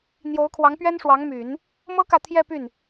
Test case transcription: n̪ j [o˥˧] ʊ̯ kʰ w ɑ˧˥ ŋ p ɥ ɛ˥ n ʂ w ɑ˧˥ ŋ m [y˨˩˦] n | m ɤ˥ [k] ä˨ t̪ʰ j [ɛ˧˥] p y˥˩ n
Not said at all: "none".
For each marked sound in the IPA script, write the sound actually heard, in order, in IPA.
o˧˥, y˨˩˦, k, ɛ˥˧

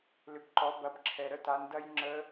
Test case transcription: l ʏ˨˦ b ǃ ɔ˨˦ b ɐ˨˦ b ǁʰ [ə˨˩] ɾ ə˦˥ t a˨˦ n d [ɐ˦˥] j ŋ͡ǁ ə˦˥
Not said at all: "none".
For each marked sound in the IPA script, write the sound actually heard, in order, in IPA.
ɛ˨˩, ɐ˦˥

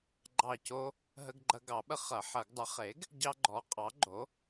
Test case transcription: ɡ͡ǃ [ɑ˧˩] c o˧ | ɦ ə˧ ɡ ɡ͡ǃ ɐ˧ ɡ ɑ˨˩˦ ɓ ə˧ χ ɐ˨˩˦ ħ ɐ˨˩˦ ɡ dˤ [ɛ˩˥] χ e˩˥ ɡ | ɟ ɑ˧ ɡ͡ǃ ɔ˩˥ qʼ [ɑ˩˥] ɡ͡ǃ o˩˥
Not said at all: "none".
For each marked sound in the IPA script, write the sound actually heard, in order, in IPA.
ɑ˧˩, ə˩˥, ɑ˩˥

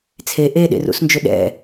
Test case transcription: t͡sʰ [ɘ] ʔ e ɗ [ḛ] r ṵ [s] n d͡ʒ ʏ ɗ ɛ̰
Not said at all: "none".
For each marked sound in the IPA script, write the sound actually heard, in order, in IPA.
e, ḛ, s

